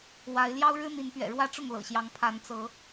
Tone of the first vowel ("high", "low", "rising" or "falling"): rising